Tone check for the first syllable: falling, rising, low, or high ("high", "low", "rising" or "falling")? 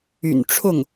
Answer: low